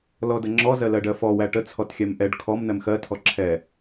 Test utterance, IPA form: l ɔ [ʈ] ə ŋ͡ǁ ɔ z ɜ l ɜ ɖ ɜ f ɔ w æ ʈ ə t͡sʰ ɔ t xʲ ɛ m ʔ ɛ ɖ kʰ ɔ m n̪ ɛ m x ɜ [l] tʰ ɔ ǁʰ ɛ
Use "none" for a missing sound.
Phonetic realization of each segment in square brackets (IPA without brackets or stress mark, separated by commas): d, none